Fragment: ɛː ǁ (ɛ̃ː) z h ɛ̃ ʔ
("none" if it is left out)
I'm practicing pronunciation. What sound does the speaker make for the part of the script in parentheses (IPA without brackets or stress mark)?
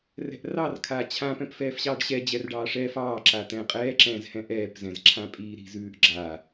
ɛ̃ː